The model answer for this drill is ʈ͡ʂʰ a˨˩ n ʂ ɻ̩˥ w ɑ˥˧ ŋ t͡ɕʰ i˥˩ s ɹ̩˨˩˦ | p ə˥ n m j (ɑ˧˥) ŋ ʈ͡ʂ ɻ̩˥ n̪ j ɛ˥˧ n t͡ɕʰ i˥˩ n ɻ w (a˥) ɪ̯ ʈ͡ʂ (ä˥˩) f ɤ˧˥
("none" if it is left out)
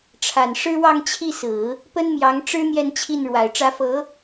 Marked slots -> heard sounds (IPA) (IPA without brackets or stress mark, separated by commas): ɑ˧˥, a˨˩, ä˧˥